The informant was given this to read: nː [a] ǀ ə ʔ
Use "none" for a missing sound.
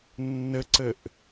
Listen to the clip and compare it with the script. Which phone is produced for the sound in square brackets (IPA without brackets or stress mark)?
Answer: ə